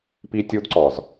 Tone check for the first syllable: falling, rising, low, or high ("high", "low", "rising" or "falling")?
high